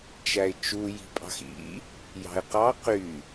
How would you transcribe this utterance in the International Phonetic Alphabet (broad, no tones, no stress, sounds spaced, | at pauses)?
t͡ʃ æ ɪ̯ t͡ʃ u j i̤ pʼ ɑ̤ x ḭ | j ɑ̤ ɪ̯ q ɑ q y